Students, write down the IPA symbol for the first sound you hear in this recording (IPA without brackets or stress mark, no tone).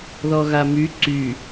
ð